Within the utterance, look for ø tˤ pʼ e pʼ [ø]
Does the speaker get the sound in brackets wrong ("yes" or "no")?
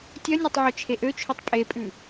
yes